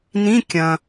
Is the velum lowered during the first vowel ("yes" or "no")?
yes